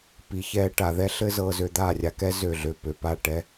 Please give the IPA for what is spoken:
p i˨ ç ɛ˧ ʈ a˨ ð ɛ˦ ɬ ɘ˦ z ɤ˧ z ø˧ d̪ a˦˨ rʲ a˧ k ɛ˦ z ø˦˨ ɮ ø˦˨ p ø˧ p a˦˨ ʈ ɛ˦

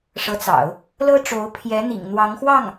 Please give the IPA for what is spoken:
ʂ ɤ˧˥ t͡s ɑ̰˨˩˦ ʊ̯ | l ɤ˥ ʈ͡ʂ o˧˥ ʊ̯ pʰ j ɛ˧˥ n̪ ḭ˨˩ ŋ n̪ w ɑ˧˥ ŋ x w ɑ˥˩ ŋ

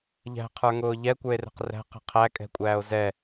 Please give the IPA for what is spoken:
ʎ æ̤ qʰ ə˞ ŋ ʊː ʎ ɛ kʷ ə˞ e̯ r ɛ̤ q r æ̤ q ɛ̤ qʰ æ kʼ ɛ̤ kʷʼ æː o̯ z ɛ

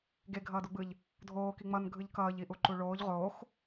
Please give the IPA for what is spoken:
ɡ e ɡʱ ʌː d u ɡ͡b ɯ ʎ | dʱ oː k i ŋ͡m ʌ n ɡʱ ɯ ʎ k ʌː ʎ i ʔ u ǃ u ɭ oː ʎ ʁ oː x

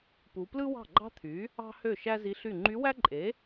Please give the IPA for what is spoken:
p u˩˧ p l ɯ˥ w ɑ̤˥˩ ɡ͡ǃ ɑ̤˥ t̪ʰ y˩˥ | ɑ̤˥ h ø˥˩ ʃ æ˥ z i˧˥ ɬ y˥˩ ŋ͡ǃ y˧˥ w æ˥ ǃʼ e˩˥

